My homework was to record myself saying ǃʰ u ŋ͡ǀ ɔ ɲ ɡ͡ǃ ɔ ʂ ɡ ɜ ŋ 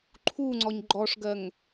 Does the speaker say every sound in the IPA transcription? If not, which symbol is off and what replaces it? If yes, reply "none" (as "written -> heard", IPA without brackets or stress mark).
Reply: none